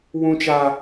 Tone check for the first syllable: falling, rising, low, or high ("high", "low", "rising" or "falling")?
high